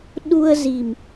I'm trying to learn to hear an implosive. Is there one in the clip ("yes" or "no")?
yes